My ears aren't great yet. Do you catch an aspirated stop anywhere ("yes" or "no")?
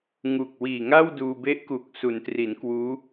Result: no